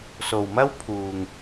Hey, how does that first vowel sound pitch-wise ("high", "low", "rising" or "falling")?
low